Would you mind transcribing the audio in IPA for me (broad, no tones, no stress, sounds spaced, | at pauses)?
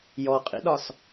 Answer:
j ɔ qʼ ḭ ɗ ɒ s